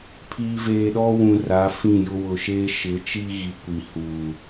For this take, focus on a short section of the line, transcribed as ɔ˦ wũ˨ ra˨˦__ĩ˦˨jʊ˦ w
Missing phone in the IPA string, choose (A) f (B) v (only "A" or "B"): A